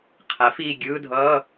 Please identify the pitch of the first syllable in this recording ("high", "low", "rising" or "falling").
rising